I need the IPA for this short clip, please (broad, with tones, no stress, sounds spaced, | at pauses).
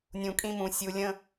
nʲ ũ˨ kʼ ĩ˦ m ũ˨ sʲ u˨ lʲ ə̃˦